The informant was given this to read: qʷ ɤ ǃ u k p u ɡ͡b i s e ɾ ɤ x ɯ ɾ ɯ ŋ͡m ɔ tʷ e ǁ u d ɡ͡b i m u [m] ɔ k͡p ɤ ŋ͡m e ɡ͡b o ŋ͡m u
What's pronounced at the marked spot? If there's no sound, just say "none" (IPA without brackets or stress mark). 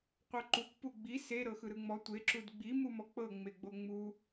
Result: m